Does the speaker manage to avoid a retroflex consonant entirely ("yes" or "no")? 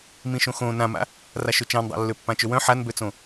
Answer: yes